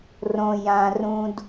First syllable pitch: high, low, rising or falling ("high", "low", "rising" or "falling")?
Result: low